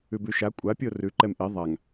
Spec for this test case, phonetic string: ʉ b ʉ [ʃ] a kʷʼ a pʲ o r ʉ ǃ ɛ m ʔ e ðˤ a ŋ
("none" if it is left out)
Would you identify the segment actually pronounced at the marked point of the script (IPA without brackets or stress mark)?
ʃ